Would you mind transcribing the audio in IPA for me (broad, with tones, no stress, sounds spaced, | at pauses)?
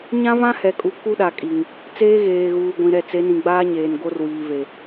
ɲ ã˦ v ã˦ h ɛ˨ kʼ u˨ k u˦ ɗ a˨ kʼ i˨ ŋ | t͡s eː˦ ɣ eː˨ ɣ uː˨ ɡʷ ĩ˨ ɾ ɛ˨ t͡s e˨˦ n ĩ˨ ɡ͡b aː˦ ɲ eː˨ n ɡ o˦ r w iː˨ v e˨